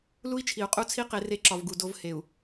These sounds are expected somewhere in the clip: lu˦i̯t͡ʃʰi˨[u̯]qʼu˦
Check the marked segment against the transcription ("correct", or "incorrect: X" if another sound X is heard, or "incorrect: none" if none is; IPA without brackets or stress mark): correct